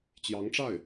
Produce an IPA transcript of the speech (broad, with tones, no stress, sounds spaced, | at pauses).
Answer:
t͡ɕ j ɑ˧˥ ŋ ʈ͡ʂ a˥˩ ɪ̯